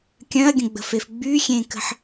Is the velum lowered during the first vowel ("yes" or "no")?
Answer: yes